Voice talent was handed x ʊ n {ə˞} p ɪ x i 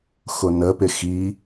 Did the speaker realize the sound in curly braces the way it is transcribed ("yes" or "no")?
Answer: no